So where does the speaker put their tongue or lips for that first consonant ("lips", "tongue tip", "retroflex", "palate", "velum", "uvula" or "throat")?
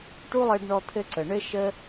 retroflex